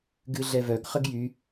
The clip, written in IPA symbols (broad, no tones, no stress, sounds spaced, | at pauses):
ɡ ɨ ɮ ɛ v œ ɡ χ ə ɡ j y